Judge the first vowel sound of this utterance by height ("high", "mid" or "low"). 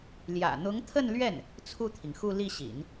low